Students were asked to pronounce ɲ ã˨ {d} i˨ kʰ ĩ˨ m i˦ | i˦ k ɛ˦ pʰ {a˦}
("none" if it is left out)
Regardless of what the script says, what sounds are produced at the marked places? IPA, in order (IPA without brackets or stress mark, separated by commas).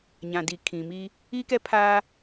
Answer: d, aː˦